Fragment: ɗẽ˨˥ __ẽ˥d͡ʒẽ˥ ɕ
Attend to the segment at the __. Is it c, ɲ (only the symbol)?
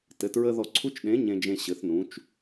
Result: ɲ